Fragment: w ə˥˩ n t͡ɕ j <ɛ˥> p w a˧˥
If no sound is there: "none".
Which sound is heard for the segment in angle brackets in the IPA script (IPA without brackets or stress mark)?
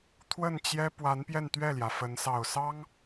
ɛ˥